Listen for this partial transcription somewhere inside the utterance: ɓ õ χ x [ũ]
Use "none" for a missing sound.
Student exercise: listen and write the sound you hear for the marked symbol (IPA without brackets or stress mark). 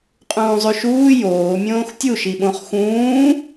ũː